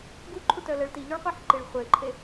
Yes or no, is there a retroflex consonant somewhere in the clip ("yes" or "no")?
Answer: yes